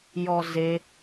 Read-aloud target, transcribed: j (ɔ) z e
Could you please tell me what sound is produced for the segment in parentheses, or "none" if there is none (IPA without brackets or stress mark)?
ɔ